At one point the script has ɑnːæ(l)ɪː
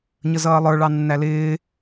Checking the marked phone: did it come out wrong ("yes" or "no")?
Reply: no